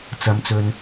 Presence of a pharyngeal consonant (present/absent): absent